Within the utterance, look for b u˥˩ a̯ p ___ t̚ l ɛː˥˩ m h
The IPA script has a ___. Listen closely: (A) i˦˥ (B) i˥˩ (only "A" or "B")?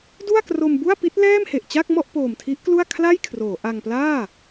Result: A